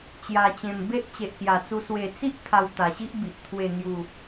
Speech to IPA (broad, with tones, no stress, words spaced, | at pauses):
t͡ɕja˨˩t͡ɕẽ˨˩m be˦ʔt͡ɕe˨ʔkja˨˩t͡su˧ swe˨˩t͡si˦ʔ t̪ʰa˧wt̪a˨˩ɕi˦ʔbi˨ʔ t̪ʰwe˨˩ŋju˨˩